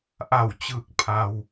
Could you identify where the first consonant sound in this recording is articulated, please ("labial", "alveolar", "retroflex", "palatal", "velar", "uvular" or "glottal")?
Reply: glottal